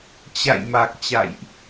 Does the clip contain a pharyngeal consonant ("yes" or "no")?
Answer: no